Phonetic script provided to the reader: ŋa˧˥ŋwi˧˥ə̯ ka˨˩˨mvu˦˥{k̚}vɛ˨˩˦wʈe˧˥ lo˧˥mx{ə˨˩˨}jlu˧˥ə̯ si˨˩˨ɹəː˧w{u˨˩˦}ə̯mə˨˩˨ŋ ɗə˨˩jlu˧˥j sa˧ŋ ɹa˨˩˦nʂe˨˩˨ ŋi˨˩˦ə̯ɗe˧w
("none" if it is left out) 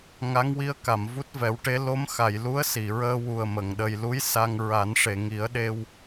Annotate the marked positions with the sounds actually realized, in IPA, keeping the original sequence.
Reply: t̚, a˨˩˨, u˨˩

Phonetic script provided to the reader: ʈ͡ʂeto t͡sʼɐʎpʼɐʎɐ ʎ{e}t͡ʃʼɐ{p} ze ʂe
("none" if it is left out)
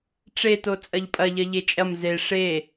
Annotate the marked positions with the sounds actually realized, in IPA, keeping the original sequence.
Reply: e, m

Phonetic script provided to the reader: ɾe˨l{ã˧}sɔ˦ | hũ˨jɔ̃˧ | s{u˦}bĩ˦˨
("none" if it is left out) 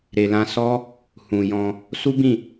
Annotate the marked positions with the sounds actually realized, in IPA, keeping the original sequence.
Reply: ã˧, u˦

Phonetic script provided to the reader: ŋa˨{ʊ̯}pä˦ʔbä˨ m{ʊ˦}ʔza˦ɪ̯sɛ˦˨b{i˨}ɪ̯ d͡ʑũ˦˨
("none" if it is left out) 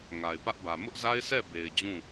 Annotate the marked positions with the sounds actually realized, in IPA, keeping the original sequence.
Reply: ɪ̯, ʊ˦, e˨

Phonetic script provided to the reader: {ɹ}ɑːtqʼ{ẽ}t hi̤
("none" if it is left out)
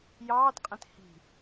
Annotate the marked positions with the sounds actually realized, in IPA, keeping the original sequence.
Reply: j, ẽ

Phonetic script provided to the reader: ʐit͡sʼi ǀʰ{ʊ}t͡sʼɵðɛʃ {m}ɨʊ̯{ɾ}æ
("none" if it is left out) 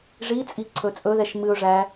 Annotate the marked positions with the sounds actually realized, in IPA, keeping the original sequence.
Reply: ɵ, m, ʐ

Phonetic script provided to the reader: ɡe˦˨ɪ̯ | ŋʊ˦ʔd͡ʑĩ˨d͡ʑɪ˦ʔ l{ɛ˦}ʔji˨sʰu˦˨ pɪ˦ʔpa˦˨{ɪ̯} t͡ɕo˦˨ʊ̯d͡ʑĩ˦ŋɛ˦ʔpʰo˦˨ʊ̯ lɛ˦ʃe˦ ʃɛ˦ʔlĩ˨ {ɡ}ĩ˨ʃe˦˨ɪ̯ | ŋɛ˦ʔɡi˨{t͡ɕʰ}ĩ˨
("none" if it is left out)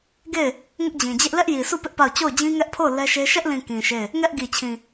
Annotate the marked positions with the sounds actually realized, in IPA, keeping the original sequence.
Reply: ɛ˦, ʊ̯, k, t͡ɕʰ

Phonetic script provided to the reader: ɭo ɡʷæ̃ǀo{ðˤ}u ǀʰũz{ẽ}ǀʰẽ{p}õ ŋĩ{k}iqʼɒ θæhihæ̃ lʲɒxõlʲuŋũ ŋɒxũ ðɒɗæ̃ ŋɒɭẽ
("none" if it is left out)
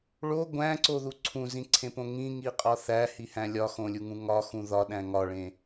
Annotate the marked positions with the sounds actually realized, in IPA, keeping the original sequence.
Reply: ð, ĩ, p, ŋ

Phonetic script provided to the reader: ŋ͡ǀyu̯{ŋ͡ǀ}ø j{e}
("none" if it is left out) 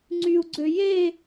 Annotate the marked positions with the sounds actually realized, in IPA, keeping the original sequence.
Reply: ɡ͡ǀ, e

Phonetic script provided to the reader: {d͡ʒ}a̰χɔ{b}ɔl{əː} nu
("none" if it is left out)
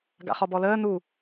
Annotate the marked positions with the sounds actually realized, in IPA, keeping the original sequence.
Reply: ɡ, b, əː

